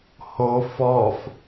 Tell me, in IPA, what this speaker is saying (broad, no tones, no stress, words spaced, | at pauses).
hof ɔf